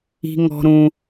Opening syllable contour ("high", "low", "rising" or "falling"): high